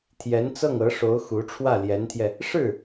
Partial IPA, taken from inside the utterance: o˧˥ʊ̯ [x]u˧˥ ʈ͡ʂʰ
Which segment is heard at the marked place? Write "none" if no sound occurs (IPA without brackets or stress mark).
x